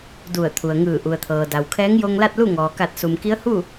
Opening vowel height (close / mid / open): close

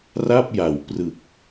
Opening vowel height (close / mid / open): open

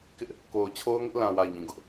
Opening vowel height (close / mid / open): close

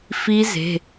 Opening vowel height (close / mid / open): close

